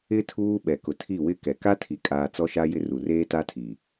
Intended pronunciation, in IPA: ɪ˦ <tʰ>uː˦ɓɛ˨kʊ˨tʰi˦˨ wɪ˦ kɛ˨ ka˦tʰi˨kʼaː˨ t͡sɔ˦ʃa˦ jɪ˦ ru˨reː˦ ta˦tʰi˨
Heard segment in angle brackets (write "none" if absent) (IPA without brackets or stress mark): tʰ